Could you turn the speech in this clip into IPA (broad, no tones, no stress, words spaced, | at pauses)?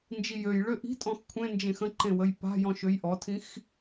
nd͡ʒijøjɭø ʔi̤tʼɔ̃x kʷʰẽnd͡ʒẽx ə̃ǃẽ wəjpa̤jɔ̃ ʃøjʔɔtʰĩx